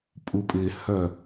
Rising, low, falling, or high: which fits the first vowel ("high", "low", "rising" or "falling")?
low